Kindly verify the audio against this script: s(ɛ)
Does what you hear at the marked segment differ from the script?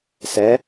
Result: no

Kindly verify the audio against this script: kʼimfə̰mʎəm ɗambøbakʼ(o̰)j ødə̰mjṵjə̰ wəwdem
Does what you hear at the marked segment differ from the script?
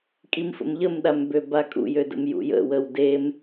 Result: yes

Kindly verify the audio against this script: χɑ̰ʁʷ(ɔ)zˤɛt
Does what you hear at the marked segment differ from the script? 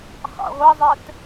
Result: yes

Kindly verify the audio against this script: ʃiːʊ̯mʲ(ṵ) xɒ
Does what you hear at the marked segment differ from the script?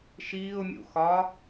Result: no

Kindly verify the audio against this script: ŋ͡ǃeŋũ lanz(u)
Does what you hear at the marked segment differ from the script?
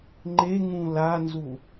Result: no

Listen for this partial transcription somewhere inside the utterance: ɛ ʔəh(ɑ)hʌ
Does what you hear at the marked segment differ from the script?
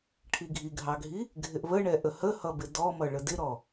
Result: yes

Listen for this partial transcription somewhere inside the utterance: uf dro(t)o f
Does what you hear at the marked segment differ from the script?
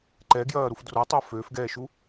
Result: yes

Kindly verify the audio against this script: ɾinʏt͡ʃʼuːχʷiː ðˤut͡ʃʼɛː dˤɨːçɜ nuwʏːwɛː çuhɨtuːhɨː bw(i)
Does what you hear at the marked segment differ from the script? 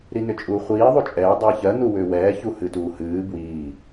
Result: yes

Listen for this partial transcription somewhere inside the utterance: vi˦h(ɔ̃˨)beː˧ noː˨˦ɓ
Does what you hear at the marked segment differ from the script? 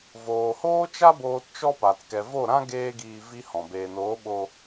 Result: no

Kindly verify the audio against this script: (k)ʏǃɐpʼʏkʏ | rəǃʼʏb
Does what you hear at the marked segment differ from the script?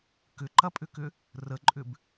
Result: no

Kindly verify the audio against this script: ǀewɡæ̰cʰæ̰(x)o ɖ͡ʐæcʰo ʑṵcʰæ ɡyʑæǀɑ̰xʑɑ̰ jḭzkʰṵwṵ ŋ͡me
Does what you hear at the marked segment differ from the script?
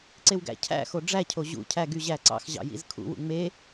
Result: no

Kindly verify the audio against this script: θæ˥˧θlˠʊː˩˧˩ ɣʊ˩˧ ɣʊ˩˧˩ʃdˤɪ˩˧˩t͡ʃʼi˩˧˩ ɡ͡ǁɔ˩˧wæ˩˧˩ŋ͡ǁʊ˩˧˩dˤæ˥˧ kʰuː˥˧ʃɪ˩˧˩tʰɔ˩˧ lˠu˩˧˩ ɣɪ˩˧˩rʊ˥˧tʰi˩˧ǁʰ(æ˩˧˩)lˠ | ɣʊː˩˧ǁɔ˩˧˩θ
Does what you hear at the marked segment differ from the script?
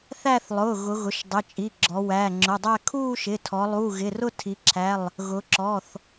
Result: no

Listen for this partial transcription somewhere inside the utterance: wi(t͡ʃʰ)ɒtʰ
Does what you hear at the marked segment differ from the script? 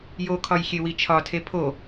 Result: no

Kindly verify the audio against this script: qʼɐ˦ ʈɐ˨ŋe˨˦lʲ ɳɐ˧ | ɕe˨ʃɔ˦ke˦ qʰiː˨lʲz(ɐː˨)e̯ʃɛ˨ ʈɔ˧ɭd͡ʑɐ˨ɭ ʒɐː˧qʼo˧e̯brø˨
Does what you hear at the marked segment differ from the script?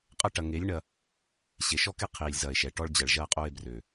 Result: no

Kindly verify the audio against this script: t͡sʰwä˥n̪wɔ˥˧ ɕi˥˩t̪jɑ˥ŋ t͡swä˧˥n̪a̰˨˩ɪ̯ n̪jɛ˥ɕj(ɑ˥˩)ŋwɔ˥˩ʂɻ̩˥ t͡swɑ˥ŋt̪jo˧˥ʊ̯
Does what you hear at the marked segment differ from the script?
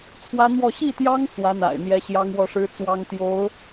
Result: yes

